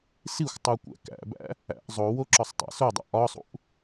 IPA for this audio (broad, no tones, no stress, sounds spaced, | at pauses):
s i xʷ tˤ u kʷ æ̰ k æ̰ b æ̰ | æ̰ ʔ zˤ o w o ǁ ɒ sˤ tˤ æ̰ s o dˤ æ̰ ʔ ɒ sˤ ṵ ʔ